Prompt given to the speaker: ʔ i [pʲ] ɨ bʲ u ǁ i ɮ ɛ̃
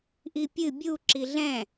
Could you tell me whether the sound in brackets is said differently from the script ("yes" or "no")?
no